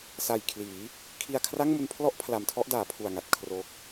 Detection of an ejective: absent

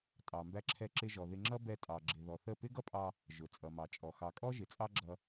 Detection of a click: present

